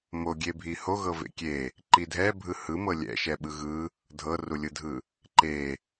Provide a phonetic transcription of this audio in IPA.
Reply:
m o ɡʲ e bʱ i h o ɣ ɤ v ḛ kʲ e | ǃ i dʱ ɛ bʱ ɯ h ɯ m ɤ lʲ ɛ̰ ʃ ɛ ɓ ɯ ɣ ɯ | dʱ ɤ r u lʲ ɯ dʱ ɯ | ǃ e

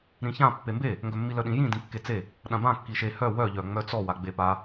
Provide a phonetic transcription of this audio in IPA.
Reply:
ɾ ĩ ç ã pː e m b e | ŋ ɡ œ mː i l œ ɗ ĩ j ĩ d ĩ kː e t͡s e | ɗ ã b ã kː i ʃ e h œ w œ ʎ œ ŋ͡m œ t͡s ɔ w a ɡ͡b e p a

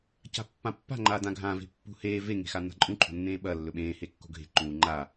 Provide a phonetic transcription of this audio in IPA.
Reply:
c a̤ pː ã pː a̤ ŋ͡ǃ aː d ã ɡʱ ã v e̤ pː ṳ h eː v e ŋ e̤ x a n a̤ ǃʼ ũ ǃʰ o̤ nː ẽː ɓ ɐ lː ɵ ɓ ẽː h e kː o̤ ɡʱ e̤ ǃ ũː ŋ͡ǃ a

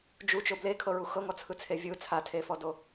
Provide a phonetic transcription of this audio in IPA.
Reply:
d͡ʒ u t͡ʃ o b l e kʰ ɤ ɹ u x ɤ ŋ ɔ t͡sʰ ɯ t͡sʰ e vʲ ɯ t͡sʰ a tʰ e f ɔ d o

